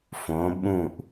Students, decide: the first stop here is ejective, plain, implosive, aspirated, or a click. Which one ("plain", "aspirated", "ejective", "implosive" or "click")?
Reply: implosive